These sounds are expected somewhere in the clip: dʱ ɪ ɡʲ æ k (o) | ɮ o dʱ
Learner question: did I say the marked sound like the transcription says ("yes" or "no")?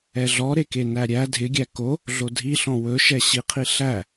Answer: yes